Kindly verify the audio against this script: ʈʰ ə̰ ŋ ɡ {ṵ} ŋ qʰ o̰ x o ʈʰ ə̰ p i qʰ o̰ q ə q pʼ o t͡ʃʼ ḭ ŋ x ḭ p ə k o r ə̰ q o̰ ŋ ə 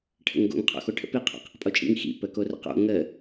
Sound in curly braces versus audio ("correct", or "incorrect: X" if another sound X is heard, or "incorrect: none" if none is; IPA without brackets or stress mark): incorrect: o̰